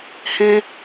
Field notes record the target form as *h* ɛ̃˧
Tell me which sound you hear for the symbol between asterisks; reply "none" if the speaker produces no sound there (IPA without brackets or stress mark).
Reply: h